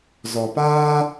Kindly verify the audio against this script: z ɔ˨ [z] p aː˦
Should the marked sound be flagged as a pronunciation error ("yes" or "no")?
yes